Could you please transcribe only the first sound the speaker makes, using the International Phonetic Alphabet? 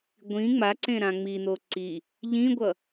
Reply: ɡʷ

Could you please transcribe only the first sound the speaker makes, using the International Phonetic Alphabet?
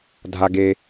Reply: dʱ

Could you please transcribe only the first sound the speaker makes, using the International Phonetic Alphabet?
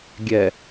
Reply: ɡʲ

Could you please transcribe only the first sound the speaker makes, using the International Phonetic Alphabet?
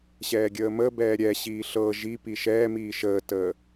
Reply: ɕ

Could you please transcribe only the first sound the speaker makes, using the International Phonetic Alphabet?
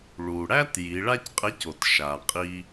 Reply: ɭ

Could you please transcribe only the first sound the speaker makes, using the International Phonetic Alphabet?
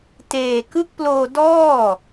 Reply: t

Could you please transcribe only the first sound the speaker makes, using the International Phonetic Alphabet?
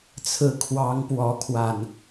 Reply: t͡sʰ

